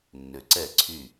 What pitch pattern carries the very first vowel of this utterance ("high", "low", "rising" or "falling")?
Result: low